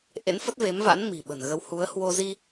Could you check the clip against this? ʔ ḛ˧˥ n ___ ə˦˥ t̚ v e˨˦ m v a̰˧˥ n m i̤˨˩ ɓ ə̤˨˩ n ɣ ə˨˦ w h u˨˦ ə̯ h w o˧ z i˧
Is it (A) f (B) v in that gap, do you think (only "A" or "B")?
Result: A